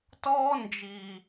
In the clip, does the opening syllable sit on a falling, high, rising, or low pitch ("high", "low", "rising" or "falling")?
high